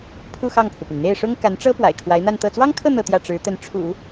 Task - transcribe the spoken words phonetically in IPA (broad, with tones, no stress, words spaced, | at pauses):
pʰu˥˧xɑ˥˩ŋpʰu˩py˩n n̪e˥˩ɪ̯ʂʊ˥ŋ ka˧˥nʈ͡ʂɤ˥ pwa̰˨˩ɪ̯kʰwa˧˥ɪ̯n̪a˥˧nt̪ɤ˥˩ t͡swɑ˥ŋkʰɤ˥˧ n̪ɤ˥˧t̪jä˥˩ ʈ͡ʂɻ̩˧˥t̪ə˧˥n ʈ͡ʂʰṵ˨˩˦